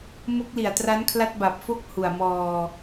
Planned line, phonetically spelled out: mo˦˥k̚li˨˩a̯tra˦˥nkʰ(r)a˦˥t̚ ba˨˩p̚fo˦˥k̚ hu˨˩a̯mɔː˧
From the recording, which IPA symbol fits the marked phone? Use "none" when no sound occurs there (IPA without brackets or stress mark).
l